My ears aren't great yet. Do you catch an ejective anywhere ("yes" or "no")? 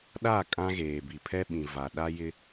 yes